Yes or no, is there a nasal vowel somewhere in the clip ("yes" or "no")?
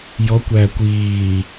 no